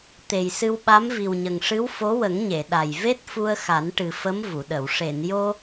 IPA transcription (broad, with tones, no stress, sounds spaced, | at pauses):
t̪ e˨˩ j s ɨ˧ w ɓ a˧˥ m v i˨˩ w ɲ ə˨˩ ŋ ʂ ɨ˧˥ w f o˧˥ w ə˨˩˦ ŋ ɲ e˨˩˨ ɗ a˨˩ j v e˦˥ t̚ f u˧ ə̯ x a˨˩˦ n ʈ ɨ˨˩ f ə˧˥ m v u˨˩˨ ɗ ə˨˩˨ w ʂ e˨˩˨ n j o˧